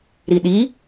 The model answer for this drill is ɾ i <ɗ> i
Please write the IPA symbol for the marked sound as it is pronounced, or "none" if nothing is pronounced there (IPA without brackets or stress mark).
ɗ